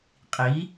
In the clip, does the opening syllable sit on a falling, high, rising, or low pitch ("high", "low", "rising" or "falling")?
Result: rising